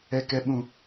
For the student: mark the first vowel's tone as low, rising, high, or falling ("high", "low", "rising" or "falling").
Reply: low